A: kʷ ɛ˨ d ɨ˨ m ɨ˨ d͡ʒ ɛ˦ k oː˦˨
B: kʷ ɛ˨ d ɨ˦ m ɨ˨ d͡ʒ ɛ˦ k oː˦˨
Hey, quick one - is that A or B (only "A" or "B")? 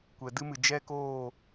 B